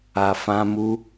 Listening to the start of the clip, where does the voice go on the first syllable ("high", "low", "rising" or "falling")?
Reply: low